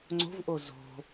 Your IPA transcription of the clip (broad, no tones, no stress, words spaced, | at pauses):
ŋ͡ǀo̤vʔo zo̤